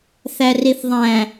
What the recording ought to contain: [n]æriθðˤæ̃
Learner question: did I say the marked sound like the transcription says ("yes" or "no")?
no